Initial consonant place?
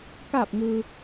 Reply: velar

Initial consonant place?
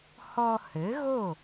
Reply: glottal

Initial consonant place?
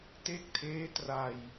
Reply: alveolar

